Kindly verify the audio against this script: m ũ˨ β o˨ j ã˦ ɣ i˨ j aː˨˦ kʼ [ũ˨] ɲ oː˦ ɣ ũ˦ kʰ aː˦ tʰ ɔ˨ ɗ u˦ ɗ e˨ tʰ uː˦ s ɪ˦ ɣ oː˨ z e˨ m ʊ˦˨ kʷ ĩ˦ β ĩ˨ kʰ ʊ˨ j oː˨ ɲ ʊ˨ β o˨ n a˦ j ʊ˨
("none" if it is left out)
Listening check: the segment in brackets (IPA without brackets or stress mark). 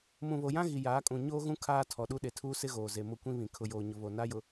ũ˨